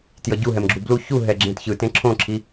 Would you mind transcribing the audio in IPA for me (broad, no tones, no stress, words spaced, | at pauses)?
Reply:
tjʌɟuɦɛmɡ͡ǁu blu çuɦɛ ɡ͡ǁẽtçɯtẽ ǁʰõǁʰi